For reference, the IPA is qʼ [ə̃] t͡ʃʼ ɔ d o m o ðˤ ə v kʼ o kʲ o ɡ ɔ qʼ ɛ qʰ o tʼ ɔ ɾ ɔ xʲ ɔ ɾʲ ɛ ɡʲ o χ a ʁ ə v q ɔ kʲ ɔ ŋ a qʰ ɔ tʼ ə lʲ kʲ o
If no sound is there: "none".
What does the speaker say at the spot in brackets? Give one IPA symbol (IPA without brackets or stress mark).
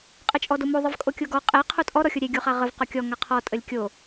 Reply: ə